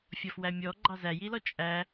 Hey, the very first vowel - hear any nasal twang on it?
no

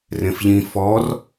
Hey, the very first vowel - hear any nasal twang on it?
yes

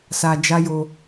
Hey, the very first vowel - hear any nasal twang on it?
no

